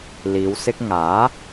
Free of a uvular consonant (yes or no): yes